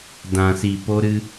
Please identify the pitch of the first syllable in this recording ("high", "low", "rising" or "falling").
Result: low